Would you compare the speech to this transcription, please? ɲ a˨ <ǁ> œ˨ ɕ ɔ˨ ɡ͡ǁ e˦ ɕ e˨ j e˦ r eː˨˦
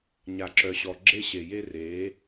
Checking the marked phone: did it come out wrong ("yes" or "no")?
no